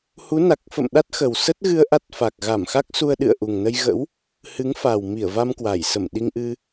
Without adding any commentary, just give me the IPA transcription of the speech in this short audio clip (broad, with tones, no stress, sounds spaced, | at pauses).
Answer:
h u˨˦ n a˨˩ k̚ f ə̰˧˨ m ɗ a˦˥ t̚ x ə˨˩ w s ə˦˥ t̚ ɣ ɨ˧ ə̯ ʔ a˦˥ t̚ f a˨˩ k̚ ɣ a˧˩ m x a˦˥ k̚ s u˧ ə̯ ɗ ɨ̰˧˨ ə̯ ʔ u˨˩ ŋ n ə˧ j ɣ ə̰˧˥ w | h ɨ˨˦ ŋ f a˨˩ w m i˧˩ ə̯ v a˧ m k w a˧˩ j s ə˧˩ m ɗ i˧ ŋ ʔ ɨ˧